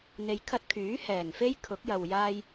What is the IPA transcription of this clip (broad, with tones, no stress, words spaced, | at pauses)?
n̪e˧jkʰɐ˥t̚ kʰyː˨˥hɛː˨˩ŋfe˥j kʰʊ˨˥k̚jɐ˨w jaː˧j